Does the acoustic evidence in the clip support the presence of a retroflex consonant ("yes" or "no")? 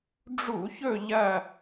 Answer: yes